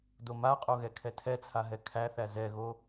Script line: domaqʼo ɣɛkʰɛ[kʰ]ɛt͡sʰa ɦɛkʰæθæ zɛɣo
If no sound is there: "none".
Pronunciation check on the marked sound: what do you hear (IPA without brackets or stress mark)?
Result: tʰ